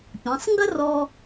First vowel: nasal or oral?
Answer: nasal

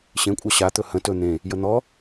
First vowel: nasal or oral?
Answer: nasal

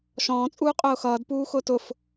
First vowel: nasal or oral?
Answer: nasal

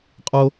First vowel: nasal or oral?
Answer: oral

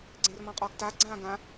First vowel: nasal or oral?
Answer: nasal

